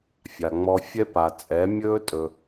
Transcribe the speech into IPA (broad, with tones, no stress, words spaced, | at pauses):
fʲa˨ŋ͡mɔ˧fʲɛ˦pa˨ t͡sʼɛ˨˦mʲɵː˦ tʼɵ˧